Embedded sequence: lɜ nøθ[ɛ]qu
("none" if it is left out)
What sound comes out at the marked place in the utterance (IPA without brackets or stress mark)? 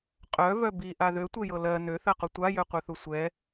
ɜ